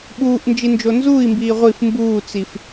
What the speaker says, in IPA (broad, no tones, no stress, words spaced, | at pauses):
ɓuːʔ nd͡ʒind͡ʒonzuːi̯mbiː ʁʷif mbuːt͡sif